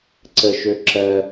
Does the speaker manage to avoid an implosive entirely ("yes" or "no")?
yes